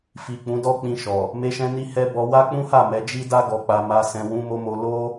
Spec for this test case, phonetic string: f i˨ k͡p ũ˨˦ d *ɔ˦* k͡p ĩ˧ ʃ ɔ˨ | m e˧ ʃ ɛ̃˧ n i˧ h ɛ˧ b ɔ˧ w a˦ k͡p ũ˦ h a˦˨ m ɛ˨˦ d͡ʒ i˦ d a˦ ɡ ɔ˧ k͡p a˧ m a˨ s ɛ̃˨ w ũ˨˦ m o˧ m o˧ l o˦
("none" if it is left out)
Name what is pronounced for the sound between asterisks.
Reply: ɔ˦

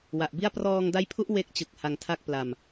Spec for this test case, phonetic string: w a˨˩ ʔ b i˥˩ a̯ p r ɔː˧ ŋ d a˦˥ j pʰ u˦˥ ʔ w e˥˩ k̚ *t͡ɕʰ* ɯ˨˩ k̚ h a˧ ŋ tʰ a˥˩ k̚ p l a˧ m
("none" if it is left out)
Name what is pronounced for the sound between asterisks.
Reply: t͡ɕ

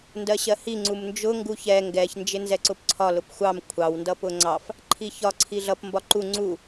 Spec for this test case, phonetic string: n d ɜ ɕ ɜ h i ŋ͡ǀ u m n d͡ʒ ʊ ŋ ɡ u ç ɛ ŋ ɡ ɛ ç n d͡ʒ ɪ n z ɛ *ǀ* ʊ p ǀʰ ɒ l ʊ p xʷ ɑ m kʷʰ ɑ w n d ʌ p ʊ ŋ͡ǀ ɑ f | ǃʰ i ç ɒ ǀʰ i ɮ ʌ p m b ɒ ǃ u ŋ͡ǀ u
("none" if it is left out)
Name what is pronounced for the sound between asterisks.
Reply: ǀ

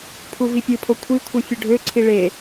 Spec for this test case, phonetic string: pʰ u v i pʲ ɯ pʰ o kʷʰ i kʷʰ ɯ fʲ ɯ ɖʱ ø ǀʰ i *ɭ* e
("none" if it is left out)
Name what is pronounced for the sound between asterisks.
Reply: ɭ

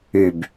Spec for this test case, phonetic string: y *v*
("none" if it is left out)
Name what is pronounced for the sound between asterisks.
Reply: b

